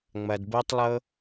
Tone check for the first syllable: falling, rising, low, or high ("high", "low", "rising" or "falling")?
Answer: low